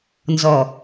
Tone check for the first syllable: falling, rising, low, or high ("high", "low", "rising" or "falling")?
low